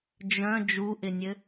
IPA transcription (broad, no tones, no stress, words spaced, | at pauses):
d͡ʒœ̃ d͡ʒuʔɪnʲɘ